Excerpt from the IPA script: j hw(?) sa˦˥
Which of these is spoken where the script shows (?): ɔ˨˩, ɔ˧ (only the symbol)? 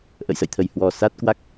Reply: ɔ˨˩